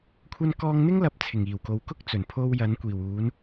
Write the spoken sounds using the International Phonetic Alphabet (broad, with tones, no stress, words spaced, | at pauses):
kʷʰɐ˧nkɔː˧ŋn̪ɪ˥ŋlɐ˨p̚ t͡sʰɪ˨˩ŋiː˨˩wko˨w kʊ˥k̚ t͡sɵ˨˩npʰo˥w jɐ˨˥nkʷiː˨˩wuː˨˥n